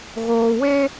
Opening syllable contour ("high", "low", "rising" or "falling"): low